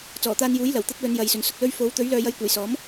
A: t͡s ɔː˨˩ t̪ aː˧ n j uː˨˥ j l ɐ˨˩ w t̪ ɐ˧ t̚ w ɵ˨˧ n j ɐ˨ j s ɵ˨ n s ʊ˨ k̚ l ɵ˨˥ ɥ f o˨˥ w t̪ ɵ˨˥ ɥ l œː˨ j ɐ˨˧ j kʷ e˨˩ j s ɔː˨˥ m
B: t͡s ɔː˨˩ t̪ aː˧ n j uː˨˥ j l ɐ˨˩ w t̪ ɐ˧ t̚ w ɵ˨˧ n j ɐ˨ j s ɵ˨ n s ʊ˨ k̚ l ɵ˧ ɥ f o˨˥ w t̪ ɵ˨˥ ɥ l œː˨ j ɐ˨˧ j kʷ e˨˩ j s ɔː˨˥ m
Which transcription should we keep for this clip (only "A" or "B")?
B